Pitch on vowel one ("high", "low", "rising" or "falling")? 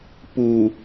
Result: low